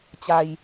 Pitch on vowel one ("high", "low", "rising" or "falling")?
low